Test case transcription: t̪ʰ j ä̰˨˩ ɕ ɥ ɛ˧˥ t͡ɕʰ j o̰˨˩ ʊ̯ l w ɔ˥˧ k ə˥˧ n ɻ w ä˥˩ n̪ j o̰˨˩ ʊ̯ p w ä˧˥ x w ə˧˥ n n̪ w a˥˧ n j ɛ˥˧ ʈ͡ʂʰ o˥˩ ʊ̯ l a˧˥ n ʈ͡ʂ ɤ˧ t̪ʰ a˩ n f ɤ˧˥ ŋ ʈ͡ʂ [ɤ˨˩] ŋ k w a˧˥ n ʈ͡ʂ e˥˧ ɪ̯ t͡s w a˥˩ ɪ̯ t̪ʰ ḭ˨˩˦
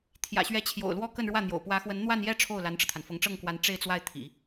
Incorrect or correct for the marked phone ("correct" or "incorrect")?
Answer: incorrect